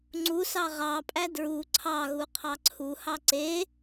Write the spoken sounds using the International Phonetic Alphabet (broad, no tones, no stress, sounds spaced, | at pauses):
ŋ͡ǀ u s ɑ ʁ ɑ pʼ æ d ɹ u ǀʰ ɑ ɣ u qʰ ɑ ǀʰ u h ɑ ǀ e